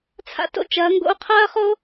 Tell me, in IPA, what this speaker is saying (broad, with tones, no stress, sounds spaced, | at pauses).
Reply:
t͡sʰ a̰˥ t o̰˥ t͡ʃ ɐː˧˥ ŋ ɡ o̰˥ u̯ qʰ ɐː˥ χ o˥